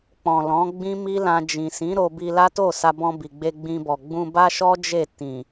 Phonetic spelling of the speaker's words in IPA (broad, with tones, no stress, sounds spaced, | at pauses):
k͡p ɔ̃˨ l ɔ̃˨˦ ɡ͡b ĩ˦ m i˦ l ã˧ d͡ʒ ĩ˨ s ĩ˨˦ ɾ o˧ b i˧ l a˦ t o˦˨ s a˧ b ɔ̃˧ b i˨ ɡ͡b e˧ ɡ͡b ĩ˧ b ɔ˨ ɡ͡b ũ˧ b a˦ ʃ ɔ˦ d͡ʒ e˦˨ t ĩ˨